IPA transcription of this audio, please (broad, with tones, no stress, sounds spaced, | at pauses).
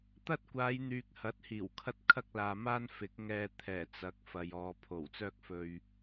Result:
t̪ ɐ˥ t̚ kʷ aː˨˧ j n̪ yː˨ k̚ h ɐ˨˥ t̚ h iː˨˩ w kʰ ɐ˥ t̚ kʰ ɐ˥ k̚ l aː˨ m aː˥ n f ɪ˨˥ k̚ ŋ ɛː˧ t̪ʰ ɛː˨˩ t͡s ɐ˨˥ k̚ f ɐ˨ j ɔː˨ pʰ o˨˩ w t͡s œː˥ k̚ f ɵ˧ ɥ